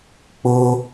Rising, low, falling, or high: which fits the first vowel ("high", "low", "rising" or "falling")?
high